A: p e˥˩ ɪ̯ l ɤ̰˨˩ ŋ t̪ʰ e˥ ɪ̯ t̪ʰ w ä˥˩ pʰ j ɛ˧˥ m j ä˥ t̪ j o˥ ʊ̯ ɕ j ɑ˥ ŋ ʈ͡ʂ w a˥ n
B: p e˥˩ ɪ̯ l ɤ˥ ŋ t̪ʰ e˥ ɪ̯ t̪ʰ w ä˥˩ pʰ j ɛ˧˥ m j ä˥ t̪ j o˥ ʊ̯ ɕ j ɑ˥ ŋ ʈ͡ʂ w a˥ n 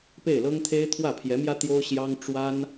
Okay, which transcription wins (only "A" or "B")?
B